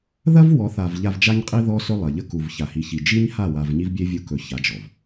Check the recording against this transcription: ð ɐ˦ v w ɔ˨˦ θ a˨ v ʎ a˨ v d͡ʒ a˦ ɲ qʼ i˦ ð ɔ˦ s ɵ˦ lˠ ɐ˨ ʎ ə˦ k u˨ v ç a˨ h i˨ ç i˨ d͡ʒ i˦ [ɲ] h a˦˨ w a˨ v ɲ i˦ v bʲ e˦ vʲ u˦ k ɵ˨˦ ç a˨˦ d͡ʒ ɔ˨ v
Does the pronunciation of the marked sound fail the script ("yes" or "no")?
no